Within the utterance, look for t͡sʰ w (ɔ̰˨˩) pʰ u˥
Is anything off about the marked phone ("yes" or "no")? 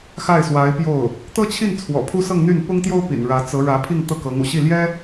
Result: no